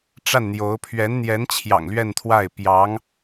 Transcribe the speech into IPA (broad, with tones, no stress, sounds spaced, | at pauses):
ʈ͡ʂ a˥˩ n n̪ j o˧˥ ʊ̯ pʰ ɥ ɛ˧˥ n n̪ j ɛ˧˥ n t͡ɕʰ j ɑ̰˨˩ ŋ l ɥ ɛ˥˧ n t̪ʰ w a˥˩ ɪ̯ p j ɑ˧˥ ŋ